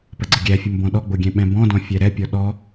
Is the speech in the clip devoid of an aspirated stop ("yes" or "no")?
yes